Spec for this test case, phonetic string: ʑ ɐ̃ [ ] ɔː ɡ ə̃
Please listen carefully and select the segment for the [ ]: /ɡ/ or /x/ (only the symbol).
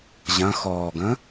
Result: x